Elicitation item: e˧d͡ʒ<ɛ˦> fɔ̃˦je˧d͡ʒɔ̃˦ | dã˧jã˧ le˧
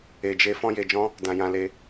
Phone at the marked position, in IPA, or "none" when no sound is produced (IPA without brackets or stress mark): e˦